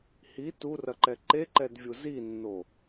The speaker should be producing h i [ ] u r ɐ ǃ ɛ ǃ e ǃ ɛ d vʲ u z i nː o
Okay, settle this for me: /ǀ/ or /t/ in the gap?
t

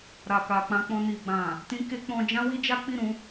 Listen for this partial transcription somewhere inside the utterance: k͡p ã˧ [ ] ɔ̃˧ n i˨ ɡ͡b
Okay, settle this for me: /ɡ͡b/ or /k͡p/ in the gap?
k͡p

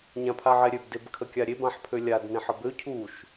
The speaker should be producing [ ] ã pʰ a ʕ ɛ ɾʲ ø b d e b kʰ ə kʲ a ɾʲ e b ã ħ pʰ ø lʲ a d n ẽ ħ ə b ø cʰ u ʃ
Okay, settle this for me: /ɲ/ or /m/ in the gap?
ɲ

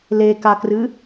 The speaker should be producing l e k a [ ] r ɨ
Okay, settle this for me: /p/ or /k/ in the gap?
k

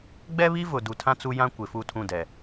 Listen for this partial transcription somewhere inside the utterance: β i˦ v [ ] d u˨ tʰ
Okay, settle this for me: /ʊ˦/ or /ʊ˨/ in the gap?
ʊ˨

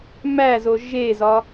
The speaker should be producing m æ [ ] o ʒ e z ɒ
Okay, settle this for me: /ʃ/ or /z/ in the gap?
z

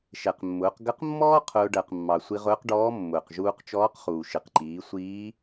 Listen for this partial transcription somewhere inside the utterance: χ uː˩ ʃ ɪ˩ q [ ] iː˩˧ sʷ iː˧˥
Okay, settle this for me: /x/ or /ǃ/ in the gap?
ǃ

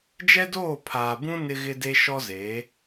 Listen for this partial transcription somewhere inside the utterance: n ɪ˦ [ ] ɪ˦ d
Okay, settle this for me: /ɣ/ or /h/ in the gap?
ɣ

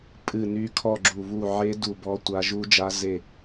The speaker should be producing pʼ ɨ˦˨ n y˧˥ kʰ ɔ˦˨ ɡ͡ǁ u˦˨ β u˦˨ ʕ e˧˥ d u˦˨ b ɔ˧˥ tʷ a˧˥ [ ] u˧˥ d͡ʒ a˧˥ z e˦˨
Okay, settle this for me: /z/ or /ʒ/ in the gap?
ʒ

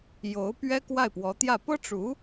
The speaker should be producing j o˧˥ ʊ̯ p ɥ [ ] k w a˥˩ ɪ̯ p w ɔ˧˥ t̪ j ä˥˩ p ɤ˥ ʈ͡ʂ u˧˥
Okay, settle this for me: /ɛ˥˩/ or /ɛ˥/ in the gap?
ɛ˥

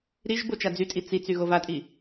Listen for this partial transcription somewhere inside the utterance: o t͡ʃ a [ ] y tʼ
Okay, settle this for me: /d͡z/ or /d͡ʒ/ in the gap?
d͡z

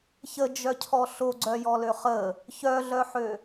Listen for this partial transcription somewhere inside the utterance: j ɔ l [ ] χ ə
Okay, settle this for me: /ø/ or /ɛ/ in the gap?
ø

